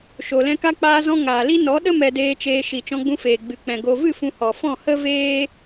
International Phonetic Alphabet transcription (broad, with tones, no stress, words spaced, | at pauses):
ʃo˨lɛ̃˧ka˦ k͡paː˧zɔ̃˧ŋaː˨li˦ nɔ˨˦ɗə˦ mɛ˧deː˧t͡ʃeː˧ ʃi˨t͡ʃɔ̃˧ɡ͡bũ˧ feː˨ɡ͡bɨ˨k͡pɛ̃˨ ɡo˨vɨ˦˨ fũ˧hɔ˨ fɔ̃˦˨hə˦veː˦